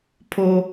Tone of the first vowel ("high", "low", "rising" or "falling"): high